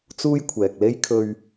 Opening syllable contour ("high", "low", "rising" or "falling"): high